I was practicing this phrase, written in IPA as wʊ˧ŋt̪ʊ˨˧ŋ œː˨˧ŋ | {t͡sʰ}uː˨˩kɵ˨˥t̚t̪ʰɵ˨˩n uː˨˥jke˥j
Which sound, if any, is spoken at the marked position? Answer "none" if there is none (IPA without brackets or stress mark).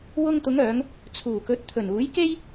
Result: t͡sʰ